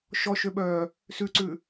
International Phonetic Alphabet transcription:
ʃɔʃøɓœː | sʉǀʉ

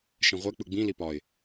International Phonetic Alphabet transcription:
ʃɛ̃ʁʷɛ k͡pɯɡ͡bĩ lipɒɪ̯

